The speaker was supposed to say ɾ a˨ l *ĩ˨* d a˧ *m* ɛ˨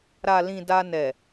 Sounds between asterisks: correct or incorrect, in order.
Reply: correct, incorrect: n

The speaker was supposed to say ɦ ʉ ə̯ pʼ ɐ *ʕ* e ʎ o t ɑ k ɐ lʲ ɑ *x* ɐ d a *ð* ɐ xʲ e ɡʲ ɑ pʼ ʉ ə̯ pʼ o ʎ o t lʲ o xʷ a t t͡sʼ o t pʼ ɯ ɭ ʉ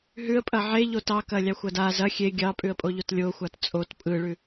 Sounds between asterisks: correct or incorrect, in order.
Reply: correct, incorrect: xʷ, incorrect: z

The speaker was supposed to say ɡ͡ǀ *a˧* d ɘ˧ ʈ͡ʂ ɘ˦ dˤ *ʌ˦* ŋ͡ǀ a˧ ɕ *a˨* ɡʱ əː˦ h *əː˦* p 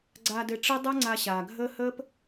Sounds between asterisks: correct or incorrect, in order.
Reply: correct, correct, incorrect: aː˨, correct

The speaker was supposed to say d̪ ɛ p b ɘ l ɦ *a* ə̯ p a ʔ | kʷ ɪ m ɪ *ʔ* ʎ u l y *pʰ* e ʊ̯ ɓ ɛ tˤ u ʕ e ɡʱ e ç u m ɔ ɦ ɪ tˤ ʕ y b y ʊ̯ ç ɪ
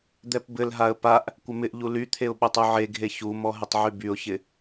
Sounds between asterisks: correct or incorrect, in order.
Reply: correct, correct, incorrect: t̪ʰ

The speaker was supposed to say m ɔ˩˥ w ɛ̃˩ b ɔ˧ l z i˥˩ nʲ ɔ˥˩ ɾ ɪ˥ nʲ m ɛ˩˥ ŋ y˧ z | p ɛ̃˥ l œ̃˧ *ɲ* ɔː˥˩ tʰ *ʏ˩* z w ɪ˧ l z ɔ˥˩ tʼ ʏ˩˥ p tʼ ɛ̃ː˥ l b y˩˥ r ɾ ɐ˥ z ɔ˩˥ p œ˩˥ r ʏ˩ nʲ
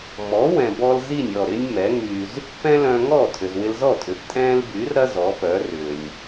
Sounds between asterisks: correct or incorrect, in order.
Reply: incorrect: ŋ, correct

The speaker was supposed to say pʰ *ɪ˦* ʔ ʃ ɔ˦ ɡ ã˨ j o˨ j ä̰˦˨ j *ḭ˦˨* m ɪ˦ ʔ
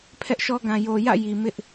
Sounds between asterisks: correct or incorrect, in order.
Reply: incorrect: ɛ˦, incorrect: i˨

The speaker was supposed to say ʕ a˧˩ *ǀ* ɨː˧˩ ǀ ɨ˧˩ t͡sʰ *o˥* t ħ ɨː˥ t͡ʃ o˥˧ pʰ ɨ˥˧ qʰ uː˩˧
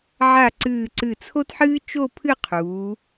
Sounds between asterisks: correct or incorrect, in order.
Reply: correct, correct

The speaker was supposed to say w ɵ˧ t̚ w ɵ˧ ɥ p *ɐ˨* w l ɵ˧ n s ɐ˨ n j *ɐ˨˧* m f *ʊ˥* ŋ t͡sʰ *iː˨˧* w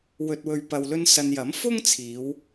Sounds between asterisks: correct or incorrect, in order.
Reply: correct, incorrect: ɐ˨˥, correct, correct

